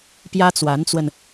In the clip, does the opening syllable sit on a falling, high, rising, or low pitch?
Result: high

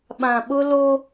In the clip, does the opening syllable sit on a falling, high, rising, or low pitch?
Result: low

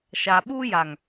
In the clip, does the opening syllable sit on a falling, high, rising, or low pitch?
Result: low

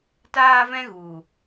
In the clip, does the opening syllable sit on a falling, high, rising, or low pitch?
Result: high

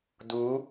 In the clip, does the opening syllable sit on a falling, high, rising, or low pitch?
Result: rising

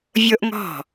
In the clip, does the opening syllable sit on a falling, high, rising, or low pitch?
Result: high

